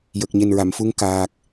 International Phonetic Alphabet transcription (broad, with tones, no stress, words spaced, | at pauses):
jə˨˩k̚ɲe˨˩nɹa˨˩˨m fu˧˥ŋkaː˨˩k̚